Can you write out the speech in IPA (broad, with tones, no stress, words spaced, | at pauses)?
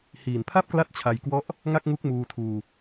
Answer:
hiː˨˩npʰa˥˩p̚kla˦˥t̚ t͡ɕʰa˧jkwɔ˦˥ʔ | ŋa˥˩k̚ŋu˦˥k̚ muː˧tʰuː˧